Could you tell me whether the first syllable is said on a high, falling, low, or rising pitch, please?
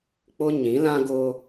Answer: high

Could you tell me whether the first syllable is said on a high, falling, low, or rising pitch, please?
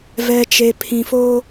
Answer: low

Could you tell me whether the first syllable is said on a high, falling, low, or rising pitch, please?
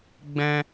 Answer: high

